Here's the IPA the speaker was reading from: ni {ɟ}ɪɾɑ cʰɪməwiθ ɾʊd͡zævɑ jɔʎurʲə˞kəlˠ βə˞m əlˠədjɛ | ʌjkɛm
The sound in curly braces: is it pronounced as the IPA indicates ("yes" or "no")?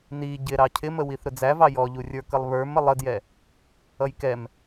yes